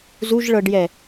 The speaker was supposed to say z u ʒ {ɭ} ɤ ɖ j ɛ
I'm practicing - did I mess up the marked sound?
no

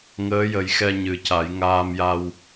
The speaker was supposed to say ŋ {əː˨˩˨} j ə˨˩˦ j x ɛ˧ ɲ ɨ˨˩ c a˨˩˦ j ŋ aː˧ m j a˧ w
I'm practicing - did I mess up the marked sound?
yes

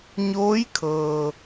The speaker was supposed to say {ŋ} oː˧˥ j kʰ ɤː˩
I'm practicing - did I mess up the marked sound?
yes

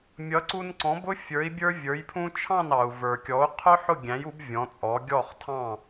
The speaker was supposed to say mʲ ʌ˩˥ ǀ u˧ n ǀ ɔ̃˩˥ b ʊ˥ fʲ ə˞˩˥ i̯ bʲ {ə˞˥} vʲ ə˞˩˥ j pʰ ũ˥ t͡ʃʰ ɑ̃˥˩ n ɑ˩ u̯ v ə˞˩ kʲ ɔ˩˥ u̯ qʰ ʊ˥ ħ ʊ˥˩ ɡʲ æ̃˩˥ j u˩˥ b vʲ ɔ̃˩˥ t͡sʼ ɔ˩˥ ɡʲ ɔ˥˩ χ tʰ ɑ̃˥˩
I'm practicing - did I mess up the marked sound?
no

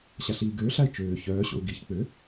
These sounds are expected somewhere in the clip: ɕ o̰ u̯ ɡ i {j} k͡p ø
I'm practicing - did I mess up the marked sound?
yes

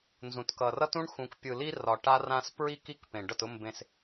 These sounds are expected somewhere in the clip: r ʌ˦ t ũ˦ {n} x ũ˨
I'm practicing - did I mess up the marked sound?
yes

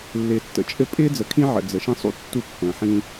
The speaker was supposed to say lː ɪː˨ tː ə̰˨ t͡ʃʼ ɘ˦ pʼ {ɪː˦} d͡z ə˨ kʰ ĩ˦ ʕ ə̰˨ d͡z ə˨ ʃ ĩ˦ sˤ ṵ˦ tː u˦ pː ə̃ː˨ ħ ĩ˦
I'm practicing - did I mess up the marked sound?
no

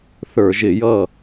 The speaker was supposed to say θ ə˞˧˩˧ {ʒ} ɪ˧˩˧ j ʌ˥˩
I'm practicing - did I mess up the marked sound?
no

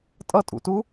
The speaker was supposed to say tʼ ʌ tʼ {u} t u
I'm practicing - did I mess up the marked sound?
yes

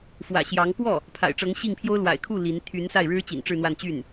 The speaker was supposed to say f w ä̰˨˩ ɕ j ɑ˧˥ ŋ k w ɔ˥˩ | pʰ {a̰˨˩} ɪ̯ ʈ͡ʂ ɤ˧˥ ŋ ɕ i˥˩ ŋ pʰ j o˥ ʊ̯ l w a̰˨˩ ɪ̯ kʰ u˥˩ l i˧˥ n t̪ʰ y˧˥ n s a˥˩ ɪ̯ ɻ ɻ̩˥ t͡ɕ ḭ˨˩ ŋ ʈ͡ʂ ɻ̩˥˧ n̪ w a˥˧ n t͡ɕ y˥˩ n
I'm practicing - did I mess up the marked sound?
no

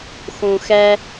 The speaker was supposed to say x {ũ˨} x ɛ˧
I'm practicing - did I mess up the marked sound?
no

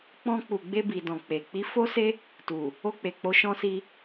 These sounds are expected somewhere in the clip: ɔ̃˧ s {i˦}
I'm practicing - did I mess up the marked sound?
yes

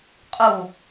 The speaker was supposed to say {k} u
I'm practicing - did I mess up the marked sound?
yes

